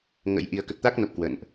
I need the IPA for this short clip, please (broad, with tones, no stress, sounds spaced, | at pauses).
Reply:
ŋ ə̰˧˥ j ʔ i˨˩ ə̯ k ə˨˩ t̚ t̪ a˦˥ k̚ n o˨˩ p̚ k w ə̰˧˨ n ʔ